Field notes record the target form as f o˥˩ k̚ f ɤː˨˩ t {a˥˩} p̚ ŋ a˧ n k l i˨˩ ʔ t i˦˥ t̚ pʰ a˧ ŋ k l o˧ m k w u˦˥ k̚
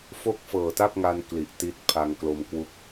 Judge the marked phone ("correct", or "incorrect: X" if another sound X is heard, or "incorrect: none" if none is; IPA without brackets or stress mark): correct